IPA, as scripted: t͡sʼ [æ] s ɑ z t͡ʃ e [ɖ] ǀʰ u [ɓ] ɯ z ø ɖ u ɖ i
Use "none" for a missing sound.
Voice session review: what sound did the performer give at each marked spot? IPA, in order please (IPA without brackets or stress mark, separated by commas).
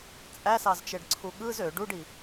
æ, ɖ, ɠ